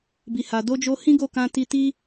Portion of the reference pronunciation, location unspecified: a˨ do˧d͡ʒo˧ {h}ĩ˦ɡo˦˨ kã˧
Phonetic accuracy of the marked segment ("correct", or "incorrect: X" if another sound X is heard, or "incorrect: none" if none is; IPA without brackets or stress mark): correct